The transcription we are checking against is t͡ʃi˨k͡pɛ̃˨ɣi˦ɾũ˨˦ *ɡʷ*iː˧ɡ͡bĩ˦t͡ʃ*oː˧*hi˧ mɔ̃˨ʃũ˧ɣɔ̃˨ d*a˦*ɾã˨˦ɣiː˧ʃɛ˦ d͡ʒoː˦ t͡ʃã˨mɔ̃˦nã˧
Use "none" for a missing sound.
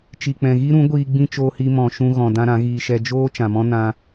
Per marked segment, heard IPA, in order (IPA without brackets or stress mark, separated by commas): ɡʷ, oː˧, ã˦